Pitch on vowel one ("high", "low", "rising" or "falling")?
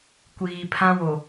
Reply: low